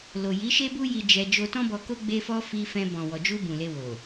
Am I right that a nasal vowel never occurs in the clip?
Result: no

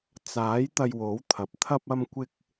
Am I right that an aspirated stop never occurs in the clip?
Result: no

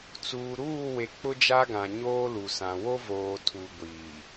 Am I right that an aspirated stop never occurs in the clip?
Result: no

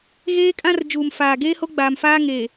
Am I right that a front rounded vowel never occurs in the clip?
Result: yes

